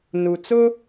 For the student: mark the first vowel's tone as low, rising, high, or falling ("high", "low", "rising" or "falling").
low